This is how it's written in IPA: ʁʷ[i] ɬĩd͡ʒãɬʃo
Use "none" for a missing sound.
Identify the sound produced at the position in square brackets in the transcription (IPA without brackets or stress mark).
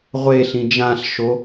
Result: e